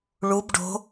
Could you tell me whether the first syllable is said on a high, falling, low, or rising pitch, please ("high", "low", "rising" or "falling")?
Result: rising